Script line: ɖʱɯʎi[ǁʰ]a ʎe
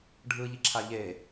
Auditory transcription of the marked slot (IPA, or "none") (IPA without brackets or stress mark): ǁʰ